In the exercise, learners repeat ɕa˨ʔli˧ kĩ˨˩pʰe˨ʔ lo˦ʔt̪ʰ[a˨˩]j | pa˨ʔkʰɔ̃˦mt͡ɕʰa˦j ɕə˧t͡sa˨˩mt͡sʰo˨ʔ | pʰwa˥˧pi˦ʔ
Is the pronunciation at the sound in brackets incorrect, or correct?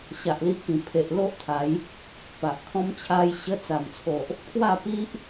incorrect